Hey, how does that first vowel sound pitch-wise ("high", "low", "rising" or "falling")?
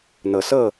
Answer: rising